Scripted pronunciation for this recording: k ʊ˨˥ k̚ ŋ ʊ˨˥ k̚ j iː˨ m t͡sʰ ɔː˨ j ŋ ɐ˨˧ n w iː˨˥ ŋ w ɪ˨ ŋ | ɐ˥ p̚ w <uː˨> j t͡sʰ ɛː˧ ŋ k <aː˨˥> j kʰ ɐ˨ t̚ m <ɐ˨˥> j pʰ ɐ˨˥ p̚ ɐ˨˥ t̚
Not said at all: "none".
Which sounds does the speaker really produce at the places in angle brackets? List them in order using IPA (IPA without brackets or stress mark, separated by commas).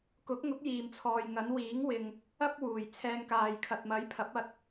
uː˨, aː˨, ɐ˨˥